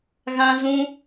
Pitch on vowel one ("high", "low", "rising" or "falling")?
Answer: high